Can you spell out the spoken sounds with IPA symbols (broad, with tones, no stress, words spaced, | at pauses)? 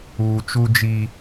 uː˨t͡ʃuː˦d͡ʒi˦